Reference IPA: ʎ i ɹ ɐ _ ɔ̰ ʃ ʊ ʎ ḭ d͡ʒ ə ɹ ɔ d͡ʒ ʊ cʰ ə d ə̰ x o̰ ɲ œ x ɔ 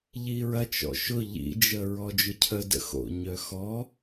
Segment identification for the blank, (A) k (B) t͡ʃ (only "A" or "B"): B